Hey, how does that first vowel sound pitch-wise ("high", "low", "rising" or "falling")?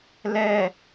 falling